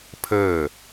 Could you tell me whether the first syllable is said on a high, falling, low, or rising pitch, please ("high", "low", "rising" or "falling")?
falling